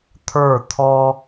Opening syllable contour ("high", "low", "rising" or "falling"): falling